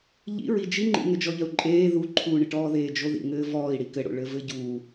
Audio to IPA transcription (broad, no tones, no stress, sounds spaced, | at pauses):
ʎ ḭ ɹ i d͡ʒ i ŋ͡ǃ ḭ ŋ ɘ d͡ʒ ɔ ʎ ɐ u̯ ǃʼ eː ð u ǃʰ uː ɳ ɪ ʈ ɔː ð eː d͡ʒ o ð ḭ ŋ ɘː v ɔː i̯ ɽ i k ɘ ɽ o̰ ɭ ɘ v ɘ ɟ u